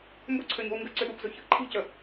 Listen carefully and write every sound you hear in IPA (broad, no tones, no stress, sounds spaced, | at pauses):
m b ʊ ǀʰ ø ɲ o̤ u̯ ŋ ɡ ə ǀ ʏ ɗ u p z ʊ ç ə ʔ ǃʰ i̤ c ə